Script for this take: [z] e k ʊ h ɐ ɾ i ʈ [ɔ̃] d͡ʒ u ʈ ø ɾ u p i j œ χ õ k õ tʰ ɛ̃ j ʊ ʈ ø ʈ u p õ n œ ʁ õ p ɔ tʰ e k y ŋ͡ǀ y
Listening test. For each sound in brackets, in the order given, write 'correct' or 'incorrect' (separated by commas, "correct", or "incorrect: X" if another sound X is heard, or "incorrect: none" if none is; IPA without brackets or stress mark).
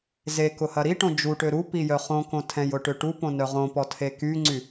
correct, incorrect: õ